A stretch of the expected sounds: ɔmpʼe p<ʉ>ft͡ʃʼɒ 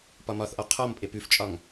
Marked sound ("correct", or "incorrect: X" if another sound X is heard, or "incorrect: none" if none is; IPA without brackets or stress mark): correct